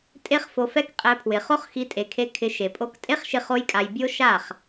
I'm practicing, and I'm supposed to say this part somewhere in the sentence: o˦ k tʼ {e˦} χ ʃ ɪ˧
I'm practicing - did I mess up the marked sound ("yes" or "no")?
no